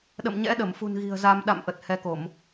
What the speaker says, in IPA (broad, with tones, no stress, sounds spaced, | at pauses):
ɗ ə̰˧˨ m ɲ ɛ̰˧˥ ɗ ə˧˩ m f ṳ˨˩ n ɣ i̤˨˩ ə̯ z a˧ m ɗ a̰˧˨ m ʔ ə˨˩ t̚ h ɛ˧ k o˧˩˨ m